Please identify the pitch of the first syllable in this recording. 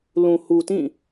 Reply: low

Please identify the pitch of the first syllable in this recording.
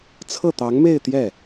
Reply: falling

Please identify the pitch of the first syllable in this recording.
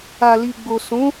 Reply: low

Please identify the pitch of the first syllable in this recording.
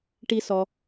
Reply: low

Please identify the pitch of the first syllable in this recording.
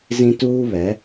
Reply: high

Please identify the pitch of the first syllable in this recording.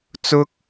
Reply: high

